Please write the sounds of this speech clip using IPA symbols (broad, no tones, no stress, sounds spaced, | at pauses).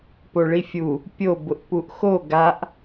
p o ɭ i fʲ u | pʲ o b ʊ ʔ p u ʔ x o ɡ a ʔ